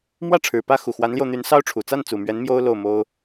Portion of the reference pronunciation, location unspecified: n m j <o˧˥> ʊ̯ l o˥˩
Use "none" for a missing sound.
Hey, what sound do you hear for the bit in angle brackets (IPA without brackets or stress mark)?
o˥